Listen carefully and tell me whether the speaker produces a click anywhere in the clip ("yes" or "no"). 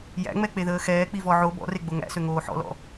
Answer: no